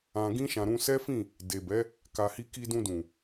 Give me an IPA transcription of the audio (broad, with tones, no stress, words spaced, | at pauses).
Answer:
ã˧ɡĩ˦ʃã˧ ɾũ˧sɛ˦fĩ˦˨ | de˨bɛ˨˦ | ka˨hi˧ki˧dũ˧ dũ˨